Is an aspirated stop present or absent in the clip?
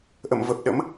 absent